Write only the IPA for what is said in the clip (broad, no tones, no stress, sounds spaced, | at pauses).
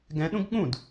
ɡ ɛ̃ ɗ ũ ɡ ɠ ũ d